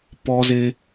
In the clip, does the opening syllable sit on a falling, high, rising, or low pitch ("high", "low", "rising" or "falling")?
high